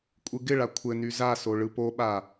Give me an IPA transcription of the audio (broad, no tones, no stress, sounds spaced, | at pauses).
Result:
kʷʼ ɯ ɡ ɪ ɭ a kʷʰ ɘ n y z a s o ɭ ɯ p o ɓ a